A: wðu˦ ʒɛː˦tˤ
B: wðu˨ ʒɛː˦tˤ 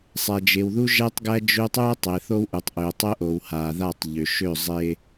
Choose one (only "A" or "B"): A